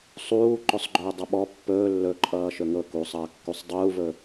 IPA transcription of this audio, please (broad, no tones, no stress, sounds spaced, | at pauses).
sˤ uː ǃ ɵ sˤ ɡ͡ǃ ɵː dˤ ʌ ɓ ɔ pː ɵː lː ɵ ǃʼ ʌː ʃ ɵ ŋ ɤ k uː sˤ ʌː kː u sˤ dˤ uː v ɵ